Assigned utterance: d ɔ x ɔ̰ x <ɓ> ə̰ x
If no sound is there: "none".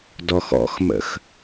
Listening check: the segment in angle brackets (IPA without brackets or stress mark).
m